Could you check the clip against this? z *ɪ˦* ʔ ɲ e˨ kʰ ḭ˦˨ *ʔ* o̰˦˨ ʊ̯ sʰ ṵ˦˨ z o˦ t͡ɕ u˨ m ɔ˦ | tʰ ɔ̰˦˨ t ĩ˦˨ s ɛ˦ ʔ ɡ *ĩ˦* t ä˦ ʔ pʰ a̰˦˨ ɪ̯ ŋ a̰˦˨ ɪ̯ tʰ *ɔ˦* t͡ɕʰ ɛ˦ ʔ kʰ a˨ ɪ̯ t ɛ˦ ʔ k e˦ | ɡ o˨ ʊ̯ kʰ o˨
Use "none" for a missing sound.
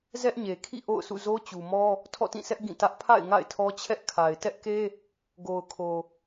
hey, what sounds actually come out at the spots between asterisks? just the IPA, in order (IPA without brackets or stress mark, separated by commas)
ɛ˦, ʔ, ĩ˦˨, ɔ˦